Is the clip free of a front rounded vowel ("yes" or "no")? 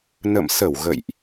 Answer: yes